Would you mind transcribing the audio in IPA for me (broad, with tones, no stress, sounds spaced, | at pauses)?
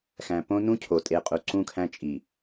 x æ̃˨ p õ˦ n ũ˦ cʰ o˨ tʼ e˨ qʼ u˨ ǀ ũ˦ kʰ æ̃˦ t͡ʃʼ i˨